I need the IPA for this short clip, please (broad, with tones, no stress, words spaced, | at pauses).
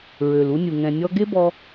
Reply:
ɹø˩lu˧nʲu˩ ŋɛ̃˩nʲɔ˧ɡe˥bɔ˧